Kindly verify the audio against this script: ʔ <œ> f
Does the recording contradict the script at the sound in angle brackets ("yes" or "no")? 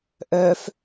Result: no